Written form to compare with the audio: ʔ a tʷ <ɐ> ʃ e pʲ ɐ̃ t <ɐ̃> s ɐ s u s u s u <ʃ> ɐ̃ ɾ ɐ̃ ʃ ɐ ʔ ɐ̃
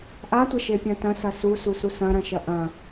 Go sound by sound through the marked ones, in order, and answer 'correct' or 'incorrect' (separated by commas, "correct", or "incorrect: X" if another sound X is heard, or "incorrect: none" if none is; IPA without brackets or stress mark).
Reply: correct, correct, incorrect: s